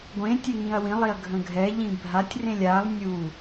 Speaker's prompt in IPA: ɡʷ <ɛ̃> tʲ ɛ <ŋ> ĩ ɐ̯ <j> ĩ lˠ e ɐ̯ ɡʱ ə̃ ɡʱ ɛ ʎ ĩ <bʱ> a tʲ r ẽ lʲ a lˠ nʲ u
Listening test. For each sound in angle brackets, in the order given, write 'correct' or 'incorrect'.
incorrect: ẽ, correct, incorrect: w, correct

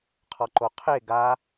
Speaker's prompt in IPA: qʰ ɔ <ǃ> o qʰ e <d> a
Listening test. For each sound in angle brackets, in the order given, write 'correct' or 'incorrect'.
correct, incorrect: ɡ

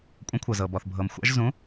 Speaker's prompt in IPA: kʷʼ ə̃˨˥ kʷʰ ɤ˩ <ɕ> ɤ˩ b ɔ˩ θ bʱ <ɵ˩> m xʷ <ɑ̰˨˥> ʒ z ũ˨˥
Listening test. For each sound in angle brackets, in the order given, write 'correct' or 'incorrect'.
incorrect: z, incorrect: ɤ˩, correct

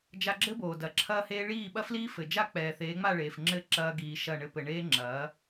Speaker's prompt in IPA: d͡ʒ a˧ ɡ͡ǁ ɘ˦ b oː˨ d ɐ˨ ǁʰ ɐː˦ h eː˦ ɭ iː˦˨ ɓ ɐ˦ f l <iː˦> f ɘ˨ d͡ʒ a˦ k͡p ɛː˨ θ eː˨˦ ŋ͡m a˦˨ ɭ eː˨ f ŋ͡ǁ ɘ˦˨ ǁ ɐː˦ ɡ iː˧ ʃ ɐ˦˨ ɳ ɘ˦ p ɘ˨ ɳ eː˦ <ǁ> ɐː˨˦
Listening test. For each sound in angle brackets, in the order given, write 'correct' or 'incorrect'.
correct, incorrect: ŋ͡ǁ

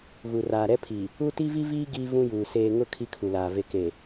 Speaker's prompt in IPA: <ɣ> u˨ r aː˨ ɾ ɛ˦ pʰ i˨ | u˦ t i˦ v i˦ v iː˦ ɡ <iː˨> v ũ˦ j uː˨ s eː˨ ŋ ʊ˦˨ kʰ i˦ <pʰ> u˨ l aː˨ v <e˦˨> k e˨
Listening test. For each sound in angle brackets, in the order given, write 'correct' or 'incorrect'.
correct, incorrect: iː˦, incorrect: kʰ, incorrect: e˨

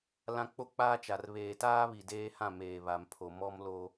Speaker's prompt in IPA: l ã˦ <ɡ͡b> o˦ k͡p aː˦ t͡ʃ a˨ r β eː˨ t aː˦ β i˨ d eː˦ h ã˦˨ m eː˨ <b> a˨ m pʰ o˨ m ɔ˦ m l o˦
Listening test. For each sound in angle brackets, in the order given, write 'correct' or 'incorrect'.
incorrect: k͡p, incorrect: β

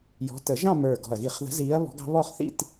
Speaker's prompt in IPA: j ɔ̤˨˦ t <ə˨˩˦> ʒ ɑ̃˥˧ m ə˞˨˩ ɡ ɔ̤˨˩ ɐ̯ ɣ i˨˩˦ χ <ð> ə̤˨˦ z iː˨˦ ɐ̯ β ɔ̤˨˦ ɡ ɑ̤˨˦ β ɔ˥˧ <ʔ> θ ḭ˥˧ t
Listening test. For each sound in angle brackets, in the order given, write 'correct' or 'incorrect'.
correct, correct, incorrect: χ

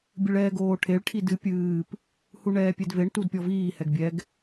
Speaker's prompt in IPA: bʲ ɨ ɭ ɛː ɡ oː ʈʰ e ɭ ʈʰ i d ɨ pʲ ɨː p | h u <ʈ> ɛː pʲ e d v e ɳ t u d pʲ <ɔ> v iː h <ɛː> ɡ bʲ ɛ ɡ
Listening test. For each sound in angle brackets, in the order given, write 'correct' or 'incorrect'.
incorrect: ɳ, correct, incorrect: ɛ

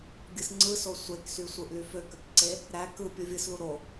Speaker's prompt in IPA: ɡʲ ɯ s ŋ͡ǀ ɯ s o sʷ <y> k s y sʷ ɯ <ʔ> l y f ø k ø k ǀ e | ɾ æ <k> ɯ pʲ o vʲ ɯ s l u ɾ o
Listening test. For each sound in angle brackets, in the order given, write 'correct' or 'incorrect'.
incorrect: e, correct, correct

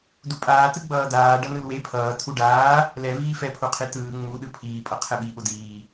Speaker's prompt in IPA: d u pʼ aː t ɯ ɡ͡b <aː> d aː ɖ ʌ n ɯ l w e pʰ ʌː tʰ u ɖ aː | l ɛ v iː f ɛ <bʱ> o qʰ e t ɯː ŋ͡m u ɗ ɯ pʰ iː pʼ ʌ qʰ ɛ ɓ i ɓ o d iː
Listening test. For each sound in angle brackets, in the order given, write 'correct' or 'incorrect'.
incorrect: ʌː, incorrect: pʰ

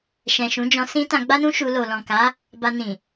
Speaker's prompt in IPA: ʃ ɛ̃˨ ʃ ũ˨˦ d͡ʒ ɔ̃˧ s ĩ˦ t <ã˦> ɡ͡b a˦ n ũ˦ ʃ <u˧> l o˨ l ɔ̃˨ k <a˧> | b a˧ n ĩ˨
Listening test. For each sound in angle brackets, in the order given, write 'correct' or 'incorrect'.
incorrect: ã˧, correct, incorrect: a˨˦

